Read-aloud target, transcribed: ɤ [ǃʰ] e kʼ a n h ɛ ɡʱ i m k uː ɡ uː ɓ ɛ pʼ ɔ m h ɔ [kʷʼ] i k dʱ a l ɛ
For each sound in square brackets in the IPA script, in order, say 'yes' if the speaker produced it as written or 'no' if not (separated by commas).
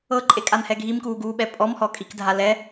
no, no